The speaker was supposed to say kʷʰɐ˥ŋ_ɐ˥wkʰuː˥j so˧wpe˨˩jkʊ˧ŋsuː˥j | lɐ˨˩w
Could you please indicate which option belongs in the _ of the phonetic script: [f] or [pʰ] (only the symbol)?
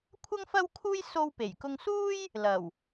f